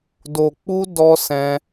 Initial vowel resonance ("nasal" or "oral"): oral